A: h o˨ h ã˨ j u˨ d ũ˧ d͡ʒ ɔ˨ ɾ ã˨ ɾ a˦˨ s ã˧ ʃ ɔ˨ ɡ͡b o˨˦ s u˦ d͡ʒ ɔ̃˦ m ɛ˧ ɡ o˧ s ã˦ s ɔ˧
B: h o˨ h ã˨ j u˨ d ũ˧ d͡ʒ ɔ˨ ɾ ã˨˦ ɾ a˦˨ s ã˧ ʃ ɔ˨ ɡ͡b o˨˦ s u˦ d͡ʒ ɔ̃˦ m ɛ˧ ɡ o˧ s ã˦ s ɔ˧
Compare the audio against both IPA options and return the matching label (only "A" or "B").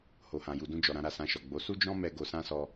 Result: B